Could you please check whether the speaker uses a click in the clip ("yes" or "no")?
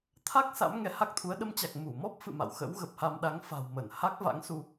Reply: no